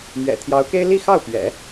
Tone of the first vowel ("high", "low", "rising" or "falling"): low